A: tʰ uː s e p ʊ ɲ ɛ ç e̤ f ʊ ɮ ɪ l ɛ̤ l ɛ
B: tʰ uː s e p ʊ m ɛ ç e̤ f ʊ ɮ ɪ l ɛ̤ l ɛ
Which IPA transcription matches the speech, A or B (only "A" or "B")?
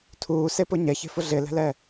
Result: A